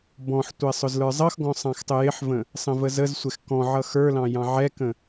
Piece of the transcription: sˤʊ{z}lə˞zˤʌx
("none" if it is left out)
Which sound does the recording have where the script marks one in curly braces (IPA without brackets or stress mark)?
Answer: z